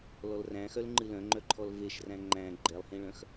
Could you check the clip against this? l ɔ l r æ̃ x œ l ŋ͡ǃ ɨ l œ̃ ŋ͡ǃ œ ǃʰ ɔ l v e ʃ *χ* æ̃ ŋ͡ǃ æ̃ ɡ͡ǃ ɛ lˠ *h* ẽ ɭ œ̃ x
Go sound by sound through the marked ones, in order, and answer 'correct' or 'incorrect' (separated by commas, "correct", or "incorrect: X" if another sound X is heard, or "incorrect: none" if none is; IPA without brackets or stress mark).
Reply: incorrect: r, correct